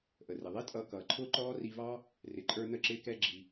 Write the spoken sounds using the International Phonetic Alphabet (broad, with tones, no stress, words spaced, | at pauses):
ʔə˩rɪ˩ ðˤi˥tʼʌː˧ kʌː˩ǃʰʊː˥ǃɔː˥ ri˧vɑ˥ | rɪ˩ǃʼə˞˧nə˧ ǁɪː˧kɛ˧ ɡ͡ǁi˩